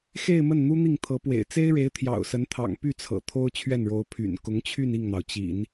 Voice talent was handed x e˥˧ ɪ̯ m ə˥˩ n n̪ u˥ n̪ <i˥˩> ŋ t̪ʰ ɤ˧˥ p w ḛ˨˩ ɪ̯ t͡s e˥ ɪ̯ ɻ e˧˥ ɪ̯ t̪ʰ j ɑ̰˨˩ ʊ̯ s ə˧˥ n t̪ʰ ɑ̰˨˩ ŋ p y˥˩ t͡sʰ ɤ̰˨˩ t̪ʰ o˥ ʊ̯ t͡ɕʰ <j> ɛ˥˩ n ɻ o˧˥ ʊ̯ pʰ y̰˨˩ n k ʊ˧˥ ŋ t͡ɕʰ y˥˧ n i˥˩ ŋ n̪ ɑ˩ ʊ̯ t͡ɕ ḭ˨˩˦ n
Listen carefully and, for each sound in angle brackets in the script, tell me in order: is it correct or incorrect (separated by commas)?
correct, incorrect